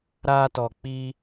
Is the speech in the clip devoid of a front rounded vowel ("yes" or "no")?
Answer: yes